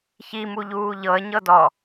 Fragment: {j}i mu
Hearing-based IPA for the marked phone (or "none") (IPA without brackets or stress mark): ç